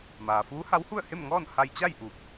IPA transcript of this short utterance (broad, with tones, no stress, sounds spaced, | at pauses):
m aː˩ f uː˧˥ h a˧˥ w h u˥˨ ə̯ h e˥˨ m ŋ ɔː˥˨ n h a˧ j t͡ɕ a˥˨ j ʔ uː˧˩ k̚